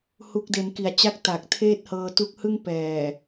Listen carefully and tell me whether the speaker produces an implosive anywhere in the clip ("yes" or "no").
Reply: no